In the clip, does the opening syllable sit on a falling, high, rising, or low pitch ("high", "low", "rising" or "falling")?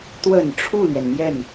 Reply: low